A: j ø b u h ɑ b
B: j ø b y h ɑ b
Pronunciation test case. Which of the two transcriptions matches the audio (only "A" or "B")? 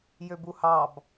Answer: A